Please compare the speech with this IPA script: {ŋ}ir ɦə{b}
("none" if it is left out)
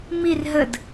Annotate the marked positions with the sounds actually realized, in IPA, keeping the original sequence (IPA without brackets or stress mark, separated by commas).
m, d